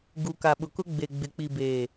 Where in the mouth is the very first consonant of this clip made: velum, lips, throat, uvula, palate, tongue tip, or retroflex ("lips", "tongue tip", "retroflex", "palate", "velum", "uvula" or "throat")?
velum